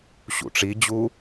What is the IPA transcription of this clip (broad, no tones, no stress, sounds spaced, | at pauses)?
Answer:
ɕ ṵ ʈ͡ʂ i d͡ʑ u